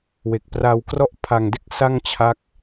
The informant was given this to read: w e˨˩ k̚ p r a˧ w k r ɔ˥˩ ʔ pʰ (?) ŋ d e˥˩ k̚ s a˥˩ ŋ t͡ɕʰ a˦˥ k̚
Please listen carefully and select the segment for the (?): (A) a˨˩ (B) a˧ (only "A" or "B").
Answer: A